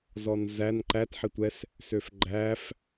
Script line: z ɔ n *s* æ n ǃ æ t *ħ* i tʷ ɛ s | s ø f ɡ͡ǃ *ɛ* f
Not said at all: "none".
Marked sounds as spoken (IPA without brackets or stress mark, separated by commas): z, ħ, æ